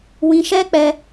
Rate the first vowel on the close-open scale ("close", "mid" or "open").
close